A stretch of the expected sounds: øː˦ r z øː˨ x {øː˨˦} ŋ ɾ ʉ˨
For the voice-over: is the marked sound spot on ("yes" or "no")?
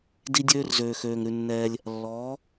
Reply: no